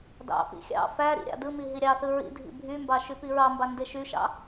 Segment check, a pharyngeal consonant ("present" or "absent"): absent